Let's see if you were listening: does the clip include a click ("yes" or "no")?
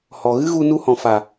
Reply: no